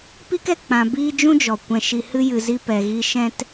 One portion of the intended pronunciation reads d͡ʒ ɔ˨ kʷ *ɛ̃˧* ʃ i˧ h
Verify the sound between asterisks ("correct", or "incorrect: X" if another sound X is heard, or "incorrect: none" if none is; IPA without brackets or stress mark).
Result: correct